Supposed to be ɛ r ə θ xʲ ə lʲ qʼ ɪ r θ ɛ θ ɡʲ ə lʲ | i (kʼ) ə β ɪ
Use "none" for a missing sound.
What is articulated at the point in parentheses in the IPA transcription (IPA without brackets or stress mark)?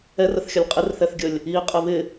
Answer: qʼ